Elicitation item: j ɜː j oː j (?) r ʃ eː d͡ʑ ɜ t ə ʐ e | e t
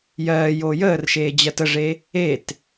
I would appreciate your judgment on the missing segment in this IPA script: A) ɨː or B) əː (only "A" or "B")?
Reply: B